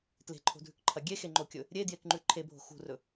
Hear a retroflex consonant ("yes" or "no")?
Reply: no